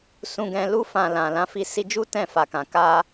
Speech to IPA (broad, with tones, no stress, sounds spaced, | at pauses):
s ũ˧ ɡ ɛ̃˧ l u˧ f ã˨ l ã˨ l ã˧ f i˧ s i˧ d͡ʒ u˦ t ɛ̃˦˨ f a˨ k ã˨ k a˧